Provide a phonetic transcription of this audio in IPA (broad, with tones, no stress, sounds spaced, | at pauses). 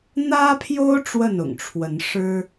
n̪ ä˦ pʰ j o˦ ʊ̯ ʈ͡ʂ w ə˥˨ n ʊ̰˨˩ ŋ ʈ͡ʂʰ w ə˨˦ n ʂ ɻ̩˦